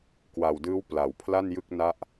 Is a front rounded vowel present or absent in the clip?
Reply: absent